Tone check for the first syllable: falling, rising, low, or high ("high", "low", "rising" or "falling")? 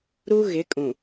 high